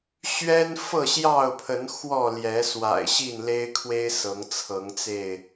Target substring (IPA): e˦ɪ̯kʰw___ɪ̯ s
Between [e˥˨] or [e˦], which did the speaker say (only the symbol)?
e˦